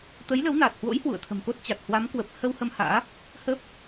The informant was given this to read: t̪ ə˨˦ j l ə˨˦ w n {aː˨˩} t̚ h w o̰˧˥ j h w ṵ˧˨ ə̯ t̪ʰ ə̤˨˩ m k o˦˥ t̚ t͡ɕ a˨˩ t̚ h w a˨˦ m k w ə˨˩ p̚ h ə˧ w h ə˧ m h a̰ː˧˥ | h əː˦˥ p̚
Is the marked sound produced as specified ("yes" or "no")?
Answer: yes